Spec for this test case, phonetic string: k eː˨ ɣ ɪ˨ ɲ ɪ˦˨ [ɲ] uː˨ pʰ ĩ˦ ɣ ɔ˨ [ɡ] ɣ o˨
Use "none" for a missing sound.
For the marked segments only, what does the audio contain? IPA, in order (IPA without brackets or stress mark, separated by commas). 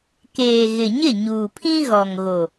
ɲ, ŋ